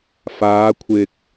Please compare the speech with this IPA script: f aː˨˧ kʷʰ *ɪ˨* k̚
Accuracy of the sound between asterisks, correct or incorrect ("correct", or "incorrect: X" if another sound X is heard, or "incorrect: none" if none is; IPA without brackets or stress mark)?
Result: correct